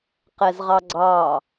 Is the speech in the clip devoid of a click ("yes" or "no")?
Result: no